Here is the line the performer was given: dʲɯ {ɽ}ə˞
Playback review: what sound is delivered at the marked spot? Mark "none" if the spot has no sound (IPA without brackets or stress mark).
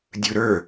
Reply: ɾ